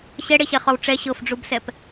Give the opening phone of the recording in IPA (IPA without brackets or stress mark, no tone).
ɕ